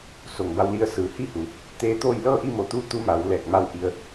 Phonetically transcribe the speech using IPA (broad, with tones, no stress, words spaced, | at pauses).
so˩ŋba˧wli˧ə̯ sɯː˩˧hi˥˨hu˩˧ | t̪eː˧˥t̪oː˥˨j lɤː˥˨ʔi˥˨mo˧˩t̪uː˧˥ t̪u˧˥ma˩˧w lɛː˧˩k̚ ma˧˥wʔi˧ə̯